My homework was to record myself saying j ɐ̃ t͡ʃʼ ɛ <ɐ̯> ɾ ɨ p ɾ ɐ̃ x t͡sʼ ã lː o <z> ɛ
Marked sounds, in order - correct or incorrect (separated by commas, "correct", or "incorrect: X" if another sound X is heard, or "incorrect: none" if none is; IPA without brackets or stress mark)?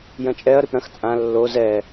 correct, correct